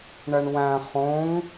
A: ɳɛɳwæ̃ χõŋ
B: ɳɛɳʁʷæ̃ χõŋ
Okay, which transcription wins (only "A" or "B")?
A